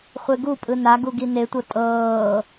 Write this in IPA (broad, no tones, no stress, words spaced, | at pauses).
χʷeɡupʼɯ naɡu ɡinetʷɤ tʼɤː